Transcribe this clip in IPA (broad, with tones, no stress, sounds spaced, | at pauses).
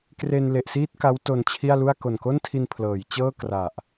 k r e˧ n l e˨˩ ʔ s iː˥˩ t̚ k a˦˥ w t o˧ n t͡ɕʰ i˥˩ a̯ l u˥˩ a̯ k o˨˩ n k o˥˩ n tʰ i˧ n pʰ l ɤː˩˦ j t͡ɕ ɤː˥˩ k r a˨˩ ʔ